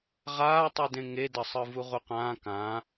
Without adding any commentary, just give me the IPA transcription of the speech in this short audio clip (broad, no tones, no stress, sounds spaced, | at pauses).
ʁ aː tˤ ɯ d ẽ ŋ e d ʌ sˤ ɯ v u ʁ u q ãː k ã